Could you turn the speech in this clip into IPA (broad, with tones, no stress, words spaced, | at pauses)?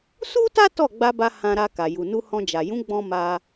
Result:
su˦ta˦ tɔ˦˨ ɡ͡ba˧ba˧ hã˧ɾa˧ka˨ ju˨nu˧ hɔ̃˧d͡ʒa˨ jũ˨˦ɡ͡bɔ̃˧ ma˧